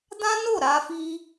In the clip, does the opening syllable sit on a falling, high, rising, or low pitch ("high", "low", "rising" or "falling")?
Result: high